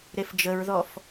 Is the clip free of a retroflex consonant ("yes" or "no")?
yes